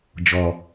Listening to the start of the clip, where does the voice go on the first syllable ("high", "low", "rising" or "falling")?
low